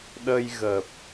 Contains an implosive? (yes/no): yes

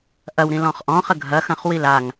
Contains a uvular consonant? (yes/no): yes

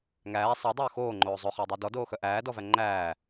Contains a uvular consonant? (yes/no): yes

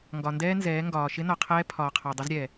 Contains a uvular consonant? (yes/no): yes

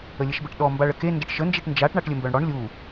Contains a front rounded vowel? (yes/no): yes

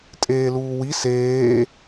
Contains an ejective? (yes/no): yes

